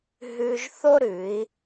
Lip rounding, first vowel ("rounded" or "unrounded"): rounded